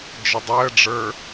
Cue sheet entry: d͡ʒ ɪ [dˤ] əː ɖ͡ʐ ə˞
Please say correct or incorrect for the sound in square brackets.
correct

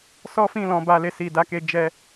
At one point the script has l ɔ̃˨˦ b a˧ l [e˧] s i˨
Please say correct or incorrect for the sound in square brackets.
correct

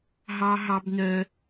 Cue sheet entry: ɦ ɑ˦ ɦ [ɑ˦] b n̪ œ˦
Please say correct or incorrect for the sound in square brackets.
correct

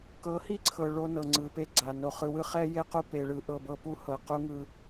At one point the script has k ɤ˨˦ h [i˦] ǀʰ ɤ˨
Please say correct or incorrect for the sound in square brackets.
correct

